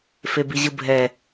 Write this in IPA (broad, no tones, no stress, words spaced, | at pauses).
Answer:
febiʑɯbʱɛ